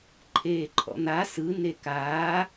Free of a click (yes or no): no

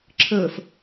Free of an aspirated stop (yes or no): no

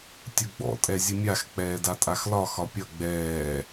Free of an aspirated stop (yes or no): yes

